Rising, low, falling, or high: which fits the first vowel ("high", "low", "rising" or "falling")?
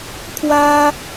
high